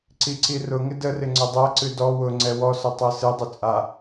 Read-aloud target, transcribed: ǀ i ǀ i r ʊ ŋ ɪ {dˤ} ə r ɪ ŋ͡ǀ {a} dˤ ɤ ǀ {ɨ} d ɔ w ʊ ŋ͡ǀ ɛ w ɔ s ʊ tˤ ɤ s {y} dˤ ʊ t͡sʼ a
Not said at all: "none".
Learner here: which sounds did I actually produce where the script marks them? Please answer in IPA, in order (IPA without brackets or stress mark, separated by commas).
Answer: d, ə, ɨ, ɨ